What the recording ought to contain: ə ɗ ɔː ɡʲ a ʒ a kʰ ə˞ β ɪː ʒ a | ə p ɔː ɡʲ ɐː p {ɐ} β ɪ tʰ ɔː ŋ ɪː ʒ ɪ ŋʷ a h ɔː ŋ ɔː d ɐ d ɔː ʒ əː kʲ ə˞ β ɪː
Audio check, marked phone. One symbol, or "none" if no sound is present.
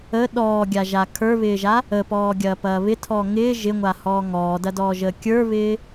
ɐː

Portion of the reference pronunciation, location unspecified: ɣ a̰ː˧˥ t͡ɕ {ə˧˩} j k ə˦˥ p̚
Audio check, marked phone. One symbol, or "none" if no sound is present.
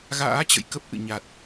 ə̰˧˨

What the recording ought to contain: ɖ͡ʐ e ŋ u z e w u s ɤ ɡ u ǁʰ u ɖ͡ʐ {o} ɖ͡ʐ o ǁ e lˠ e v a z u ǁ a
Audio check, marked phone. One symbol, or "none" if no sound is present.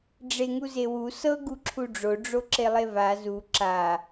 o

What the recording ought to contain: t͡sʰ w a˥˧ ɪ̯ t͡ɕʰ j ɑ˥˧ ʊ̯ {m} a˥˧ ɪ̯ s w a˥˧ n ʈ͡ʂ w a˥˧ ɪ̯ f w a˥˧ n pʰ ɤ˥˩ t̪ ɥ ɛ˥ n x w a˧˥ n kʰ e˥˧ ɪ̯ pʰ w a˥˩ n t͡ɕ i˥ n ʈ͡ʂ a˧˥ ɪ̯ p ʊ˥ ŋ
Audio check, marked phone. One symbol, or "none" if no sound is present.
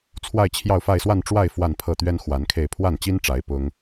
f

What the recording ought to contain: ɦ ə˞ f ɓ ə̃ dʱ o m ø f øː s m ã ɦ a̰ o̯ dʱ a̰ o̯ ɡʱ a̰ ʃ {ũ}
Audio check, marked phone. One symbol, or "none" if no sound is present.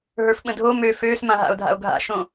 õ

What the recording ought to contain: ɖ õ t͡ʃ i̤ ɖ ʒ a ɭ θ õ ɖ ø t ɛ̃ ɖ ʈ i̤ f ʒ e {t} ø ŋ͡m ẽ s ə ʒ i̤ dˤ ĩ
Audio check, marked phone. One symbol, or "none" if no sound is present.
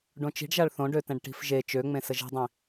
t͡ʃ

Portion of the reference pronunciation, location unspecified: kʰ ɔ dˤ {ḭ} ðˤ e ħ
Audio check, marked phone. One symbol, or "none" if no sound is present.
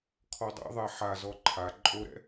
ḭ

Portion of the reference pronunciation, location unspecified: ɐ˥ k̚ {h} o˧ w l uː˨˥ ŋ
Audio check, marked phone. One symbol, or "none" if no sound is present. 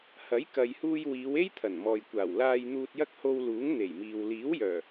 h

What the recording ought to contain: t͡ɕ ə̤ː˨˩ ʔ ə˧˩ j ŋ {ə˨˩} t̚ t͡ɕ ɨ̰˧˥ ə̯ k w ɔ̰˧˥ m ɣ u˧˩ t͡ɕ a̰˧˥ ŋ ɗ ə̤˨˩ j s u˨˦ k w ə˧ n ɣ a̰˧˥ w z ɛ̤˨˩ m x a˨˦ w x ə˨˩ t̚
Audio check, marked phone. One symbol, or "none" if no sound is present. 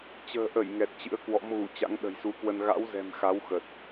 ɛ˨˩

